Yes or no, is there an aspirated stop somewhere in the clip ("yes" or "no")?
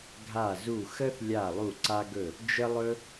no